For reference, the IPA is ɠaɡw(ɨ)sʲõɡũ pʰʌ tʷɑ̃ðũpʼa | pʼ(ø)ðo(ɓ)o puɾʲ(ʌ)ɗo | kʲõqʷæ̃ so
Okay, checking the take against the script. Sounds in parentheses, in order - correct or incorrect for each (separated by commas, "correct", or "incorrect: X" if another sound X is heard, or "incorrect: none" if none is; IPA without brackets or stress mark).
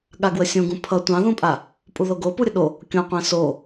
incorrect: ə, incorrect: u, incorrect: ɡ, incorrect: ə